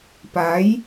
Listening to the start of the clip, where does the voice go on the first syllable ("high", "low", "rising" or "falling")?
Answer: rising